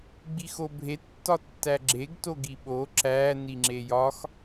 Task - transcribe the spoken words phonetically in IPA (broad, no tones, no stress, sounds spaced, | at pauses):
ɡ͡b i x o bʱ e tː ɒ tː æ ɡ͡ǁ e ɡ t o ɡ i ɓ o ǁ æ n i ŋ͡ǁ e j ɒ x